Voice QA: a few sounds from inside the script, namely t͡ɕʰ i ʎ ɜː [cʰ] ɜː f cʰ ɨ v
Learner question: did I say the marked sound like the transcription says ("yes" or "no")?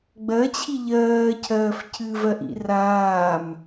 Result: yes